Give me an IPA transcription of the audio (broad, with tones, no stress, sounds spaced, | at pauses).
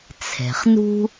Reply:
t͡sʰ ɛ̤˩ χ n ṳ˥